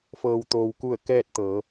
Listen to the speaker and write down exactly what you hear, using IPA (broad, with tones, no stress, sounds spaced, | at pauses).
f ɤː˩ w t̪ oː˩ w k u˧˩ ə̯ k ɛː˥˨ t̚ t̪ ɤː˩˧